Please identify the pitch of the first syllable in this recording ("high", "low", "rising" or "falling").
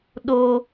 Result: low